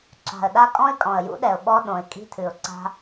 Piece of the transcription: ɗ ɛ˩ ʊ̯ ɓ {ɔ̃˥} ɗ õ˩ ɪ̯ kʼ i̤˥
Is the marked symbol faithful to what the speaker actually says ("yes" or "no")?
no